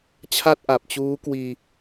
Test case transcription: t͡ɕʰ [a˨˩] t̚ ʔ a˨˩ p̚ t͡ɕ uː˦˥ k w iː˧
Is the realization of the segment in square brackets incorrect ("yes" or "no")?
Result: yes